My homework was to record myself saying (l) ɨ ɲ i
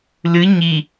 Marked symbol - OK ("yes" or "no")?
yes